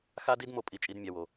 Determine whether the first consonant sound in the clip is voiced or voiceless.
voiceless